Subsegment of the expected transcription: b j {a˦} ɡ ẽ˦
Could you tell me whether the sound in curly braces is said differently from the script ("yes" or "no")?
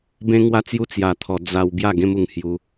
yes